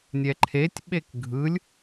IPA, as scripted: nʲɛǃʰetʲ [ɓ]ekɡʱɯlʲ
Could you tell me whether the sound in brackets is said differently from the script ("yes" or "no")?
no